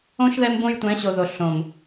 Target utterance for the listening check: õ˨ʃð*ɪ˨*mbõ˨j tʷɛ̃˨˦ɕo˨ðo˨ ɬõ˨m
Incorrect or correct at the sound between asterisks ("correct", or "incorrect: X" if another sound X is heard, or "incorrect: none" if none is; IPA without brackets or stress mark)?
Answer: incorrect: ɛ˨